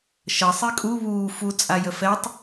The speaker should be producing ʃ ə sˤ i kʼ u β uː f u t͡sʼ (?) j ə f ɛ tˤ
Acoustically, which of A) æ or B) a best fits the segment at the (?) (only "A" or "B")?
B